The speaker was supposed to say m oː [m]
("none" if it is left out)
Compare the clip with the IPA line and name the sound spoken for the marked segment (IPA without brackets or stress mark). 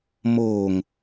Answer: ŋ